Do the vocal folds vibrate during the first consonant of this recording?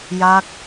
yes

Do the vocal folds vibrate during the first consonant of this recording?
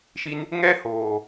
no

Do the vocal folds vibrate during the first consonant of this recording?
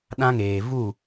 yes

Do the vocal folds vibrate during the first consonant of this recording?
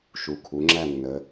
no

